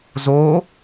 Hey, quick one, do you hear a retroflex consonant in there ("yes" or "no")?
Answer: no